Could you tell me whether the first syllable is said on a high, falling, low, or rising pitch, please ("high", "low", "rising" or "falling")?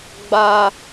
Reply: high